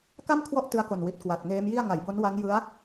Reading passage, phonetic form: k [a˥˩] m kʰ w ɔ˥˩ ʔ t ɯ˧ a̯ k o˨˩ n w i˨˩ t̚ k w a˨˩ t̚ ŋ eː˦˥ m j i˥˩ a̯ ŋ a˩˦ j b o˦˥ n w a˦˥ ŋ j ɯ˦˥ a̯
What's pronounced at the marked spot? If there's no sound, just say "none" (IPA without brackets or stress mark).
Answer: a˥˩